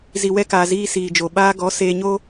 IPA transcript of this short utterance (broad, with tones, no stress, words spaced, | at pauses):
zi˨wɛ˧kaː˨ ziː˧siː˨d͡ʒo˨ ɓaː˧ɡɔ˨˦ seː˧ɲo˦